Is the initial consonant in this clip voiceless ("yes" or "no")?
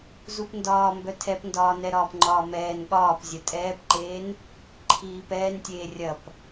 no